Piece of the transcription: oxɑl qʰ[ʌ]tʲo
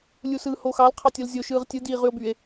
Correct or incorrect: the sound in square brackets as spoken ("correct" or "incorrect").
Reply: incorrect